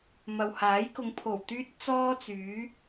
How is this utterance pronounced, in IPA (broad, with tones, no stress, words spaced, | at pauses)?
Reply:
mɐ˨whaː˨˥jkʊ˨˧ŋ pʰo˨˩w t̪yː˥t̚t͡sɔː˥t͡syː˨˥